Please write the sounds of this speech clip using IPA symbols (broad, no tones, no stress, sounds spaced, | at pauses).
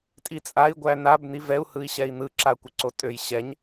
tʼ i t͡sʼ a i̯ ɡʷ æ n a b n i v ɛ u̯ h ɯ i̯ ɕ ɛ i̯ n̪ ɯ ǁ a kʷ ɪ ǀ o tʼ ø j ɕ ɛ ɲ